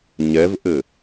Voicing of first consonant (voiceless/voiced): voiced